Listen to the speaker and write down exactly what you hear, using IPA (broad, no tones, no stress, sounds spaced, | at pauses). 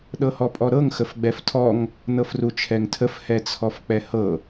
ɗ ɤ h ɔ pʼ ɔ ɾ ɤ ŋ x ə f ɡ͡b ɛ f tʰ ɔ ŋ | n ɤ f r u t͡ʃʰ ɛ ŋ tʰ ə f h ɛ t͡sʰ ɔ f k͡p ɛ h ɤ